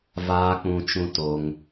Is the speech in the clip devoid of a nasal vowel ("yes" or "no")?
no